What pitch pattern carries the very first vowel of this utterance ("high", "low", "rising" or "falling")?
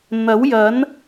rising